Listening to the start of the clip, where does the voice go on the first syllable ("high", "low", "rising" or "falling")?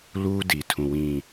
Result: high